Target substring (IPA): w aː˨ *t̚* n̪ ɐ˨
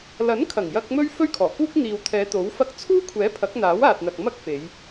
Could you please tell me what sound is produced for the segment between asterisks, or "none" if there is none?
t̚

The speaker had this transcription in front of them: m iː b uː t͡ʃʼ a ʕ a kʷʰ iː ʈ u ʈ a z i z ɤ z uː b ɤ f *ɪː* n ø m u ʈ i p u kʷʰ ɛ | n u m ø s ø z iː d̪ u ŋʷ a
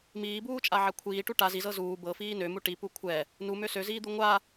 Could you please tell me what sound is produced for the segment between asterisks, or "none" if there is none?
iː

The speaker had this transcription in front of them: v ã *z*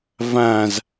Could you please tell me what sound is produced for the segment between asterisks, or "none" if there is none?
z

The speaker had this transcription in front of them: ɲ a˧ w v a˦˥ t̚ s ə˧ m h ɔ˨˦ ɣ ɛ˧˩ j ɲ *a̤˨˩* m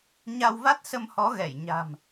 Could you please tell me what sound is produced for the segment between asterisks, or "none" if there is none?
a̤˨˩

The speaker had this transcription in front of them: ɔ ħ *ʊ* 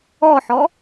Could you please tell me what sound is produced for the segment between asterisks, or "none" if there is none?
ɔ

